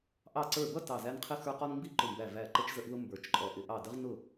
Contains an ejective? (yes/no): yes